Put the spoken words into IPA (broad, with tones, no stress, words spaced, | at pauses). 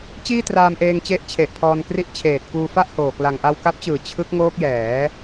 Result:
t͡ɕiː˥˩ traː˧mʔeː˧ŋt͡ɕe˦˥ʔ t͡ɕʰe˨˩ʔpʰɔː˧nkri˥˩ʔ t͡ɕʰeː˨˩t̚kuː˧fa˥˩ʔhoː˨˩ kla˨˩ŋʔa˧wka˦˥p̚t͡ɕɯː˨˩ t͡ɕʰɯ˦˥k̚ŋoː˦˥k̚jɛː˩˦